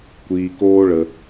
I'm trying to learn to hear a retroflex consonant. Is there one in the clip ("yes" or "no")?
yes